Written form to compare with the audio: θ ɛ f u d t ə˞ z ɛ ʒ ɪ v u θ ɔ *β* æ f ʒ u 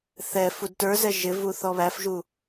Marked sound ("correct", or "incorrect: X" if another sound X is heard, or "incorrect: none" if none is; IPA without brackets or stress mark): correct